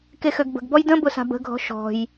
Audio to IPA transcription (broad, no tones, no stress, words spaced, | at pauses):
kexøɡbə̤ɡbɔj də̃ bʊsa̤bə̤ɡʱɔ̤ ʃɔ̤j